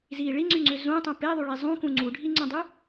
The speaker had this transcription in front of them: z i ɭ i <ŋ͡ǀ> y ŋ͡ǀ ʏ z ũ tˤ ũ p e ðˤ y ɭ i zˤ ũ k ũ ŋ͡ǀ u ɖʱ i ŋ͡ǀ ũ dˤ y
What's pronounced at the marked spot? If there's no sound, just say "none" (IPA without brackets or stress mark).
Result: ŋ͡ǀ